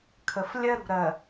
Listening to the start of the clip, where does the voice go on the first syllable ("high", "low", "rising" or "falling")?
low